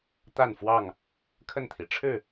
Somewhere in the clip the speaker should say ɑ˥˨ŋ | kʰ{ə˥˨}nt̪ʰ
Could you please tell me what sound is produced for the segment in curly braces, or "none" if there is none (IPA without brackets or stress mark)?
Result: ə˥˨